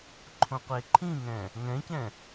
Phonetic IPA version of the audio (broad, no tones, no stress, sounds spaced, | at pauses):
ǃʰ õ qʷ e ǃʰ ĩ ŋ ɛ̃ | ŋ ɛ̃ c ɛ̃